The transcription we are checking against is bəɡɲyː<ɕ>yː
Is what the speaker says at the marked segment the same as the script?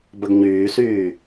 no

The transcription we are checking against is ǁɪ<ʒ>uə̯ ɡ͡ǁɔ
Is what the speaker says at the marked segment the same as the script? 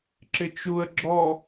no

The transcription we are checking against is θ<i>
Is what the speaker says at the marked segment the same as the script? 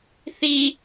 yes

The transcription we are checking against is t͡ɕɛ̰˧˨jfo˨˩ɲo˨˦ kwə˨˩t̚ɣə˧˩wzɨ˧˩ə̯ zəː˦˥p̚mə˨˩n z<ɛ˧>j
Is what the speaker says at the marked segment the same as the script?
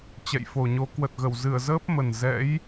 no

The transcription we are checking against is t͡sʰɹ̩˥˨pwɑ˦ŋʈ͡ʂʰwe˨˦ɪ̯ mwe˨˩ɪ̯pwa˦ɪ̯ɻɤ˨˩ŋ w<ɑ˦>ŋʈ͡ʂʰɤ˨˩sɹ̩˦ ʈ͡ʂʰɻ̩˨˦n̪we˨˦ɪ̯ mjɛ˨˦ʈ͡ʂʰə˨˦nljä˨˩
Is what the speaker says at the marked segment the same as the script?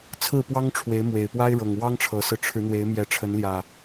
yes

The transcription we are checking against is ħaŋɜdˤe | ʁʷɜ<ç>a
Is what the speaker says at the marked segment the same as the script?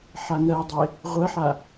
no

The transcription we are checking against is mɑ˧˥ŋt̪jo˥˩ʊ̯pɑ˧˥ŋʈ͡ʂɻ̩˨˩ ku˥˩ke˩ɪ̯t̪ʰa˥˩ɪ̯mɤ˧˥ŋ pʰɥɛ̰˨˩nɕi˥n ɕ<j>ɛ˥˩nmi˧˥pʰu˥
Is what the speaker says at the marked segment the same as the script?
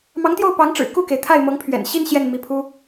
yes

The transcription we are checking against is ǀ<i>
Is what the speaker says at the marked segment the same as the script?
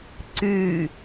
no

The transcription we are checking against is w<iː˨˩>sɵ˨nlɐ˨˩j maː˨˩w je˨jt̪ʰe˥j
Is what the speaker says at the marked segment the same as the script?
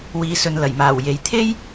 no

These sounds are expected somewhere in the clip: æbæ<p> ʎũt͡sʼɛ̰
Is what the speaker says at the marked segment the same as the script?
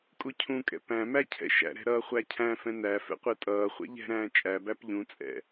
yes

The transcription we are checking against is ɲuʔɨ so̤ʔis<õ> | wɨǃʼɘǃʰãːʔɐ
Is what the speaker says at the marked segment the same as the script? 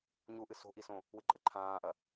yes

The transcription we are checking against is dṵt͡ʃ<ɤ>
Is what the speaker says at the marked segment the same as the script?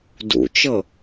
yes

